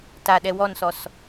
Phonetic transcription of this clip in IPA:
t a ɗ ɛ w ɔ n s ɔ s

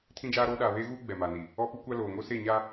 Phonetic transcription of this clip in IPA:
tʰ ĩ˦ d͡ʒ aː˦ ɾ oː˦ ɗ aː˨ β eː˦ ɣ uː˦ ɡ͡b ɛ˨ m a˨ n i˨ | ɔ˦ p u˦ kʷ a˦ l oː˨ ŋ o˦ s e˦˨ ɲ a˦

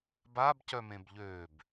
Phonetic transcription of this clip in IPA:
b a b c œ m ẽ b ʎ ø b

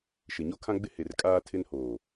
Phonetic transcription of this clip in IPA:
ʃ ɪ˨ ɲ o˦ kʰ ã˦ ɡ͡b ɪ˦ h e˨ r kʼ aː˦ tʰ ɪ˦ n h oː˨

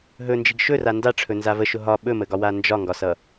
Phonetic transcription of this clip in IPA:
ɦ ɵ n d͡ʒ i ɡ ʃ ɵ r a n d a ʈ͡ʂʰ ɵ n z a v ə ʃ ʊ ɦ ɒ ɓ ɵ m ə ɡ ɒ w a n d͡ʒ ɒ ŋ ɡ ɒ s ʌ

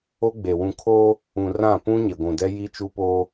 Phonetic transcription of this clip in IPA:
o˦ ɡ͡b e˨ w ũ˨ kʰ oː˦ | ũ˨ r ã˦˨ p ũ˦ ɲ e˨ ɡʷ ũ˨ d ɛ˦ j i˦ t͡ʃ u˦ p oː˦

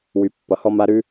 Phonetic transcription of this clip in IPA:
w y˩˧ pː ʌ˩ h ɔ˥ m a˧˥ ɾ ʉ˥

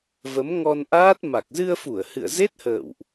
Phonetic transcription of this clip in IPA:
v ə˨˦ m ŋ ɔ˧ n ʔ aː˦˥ t̚ m a˨˩ k̚ z ɨ˧ ə̯ f u˧˩ ə̯ h ɨ̰˧˨ ə̯ z e˦˥ t̚ h ə̰ː˧˨ w ʔ

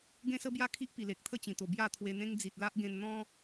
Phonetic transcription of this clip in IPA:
ɡ ẽ˦ s ə˦ b j a˦ kʰ i˦ ʔ p i˨˩ l e˨ k̚ t̪ʰ ə˥˧ t͡ɕ ĩ˨˩ t̪ o˨˩ b j a˥˧ t̪ʰ w e˧ n̪ ẽ˦ ŋ d͡z i˨ t̚ l a˦ ʔ ɡ ẽ˧ n n̪ ɔ̃˦

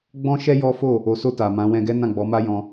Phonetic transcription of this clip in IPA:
ɡ͡b ɔ̃˦ ʃ ɛ˦ j ɔ˦ f o˦˨ | o˨ s o˧ t a˨ m ã˨˦ w ɛ̃˧ ɡ ɛ˦ n ã˦˨ ɡ͡b ɔ˨˦ m a˦ j ɔ̃˧

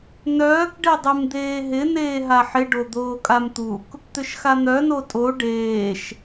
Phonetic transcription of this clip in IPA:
n œː k ɖ e dˤ e m d̪ eː ɦ ɪ n eː ɦ a ħ ɪ ɖ o d̪ oː kʼ a m t̪ u k | t̪ ʏ ʃ x a n̪ œ n o tʼ o ɖ eː ʃ

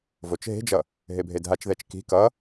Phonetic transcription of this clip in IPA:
v o t͡ʃ ɦ e̤ d͡ʒ ʌ | ɦ e bʱ e dʱ a t͡ʃ ð ɛ t͡ʃ k i̤ k ʌ

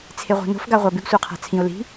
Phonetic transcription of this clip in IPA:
t͡sʰ e ʁʷ a̤ n o̤ f ɡ a ʁʷ a b ʉ ɡ sʷ ə˞ qʰ a̤ t͡sʰ ĩ ʊ̯ l i̤

